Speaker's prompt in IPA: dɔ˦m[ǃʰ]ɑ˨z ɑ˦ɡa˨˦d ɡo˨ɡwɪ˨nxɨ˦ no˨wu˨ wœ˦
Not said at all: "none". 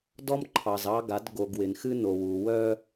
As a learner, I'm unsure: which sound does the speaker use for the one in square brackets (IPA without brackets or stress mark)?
ǃʰ